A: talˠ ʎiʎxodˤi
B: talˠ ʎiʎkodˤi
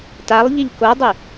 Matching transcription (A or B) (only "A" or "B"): B